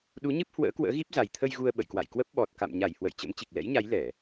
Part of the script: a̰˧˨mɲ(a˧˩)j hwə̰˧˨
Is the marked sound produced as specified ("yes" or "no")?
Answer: yes